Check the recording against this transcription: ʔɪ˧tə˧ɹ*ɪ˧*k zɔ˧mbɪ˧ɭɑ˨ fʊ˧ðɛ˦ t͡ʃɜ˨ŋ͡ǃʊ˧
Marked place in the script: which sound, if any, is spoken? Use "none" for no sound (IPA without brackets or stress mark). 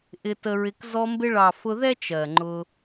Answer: ɪ˧